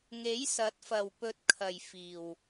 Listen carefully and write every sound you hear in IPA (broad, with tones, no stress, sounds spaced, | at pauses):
ŋ e˨˥ j s ɐ˨˥ t̚ f ɐ˨ w p ɵ˨˥ t̚ kʰ ɐ˨ j f iː˨ w